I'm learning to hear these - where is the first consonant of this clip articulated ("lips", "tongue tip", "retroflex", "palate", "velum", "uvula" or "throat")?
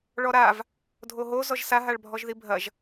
retroflex